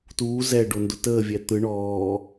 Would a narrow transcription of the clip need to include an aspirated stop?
no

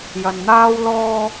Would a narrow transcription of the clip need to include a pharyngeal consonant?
no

